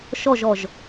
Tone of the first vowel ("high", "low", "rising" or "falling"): falling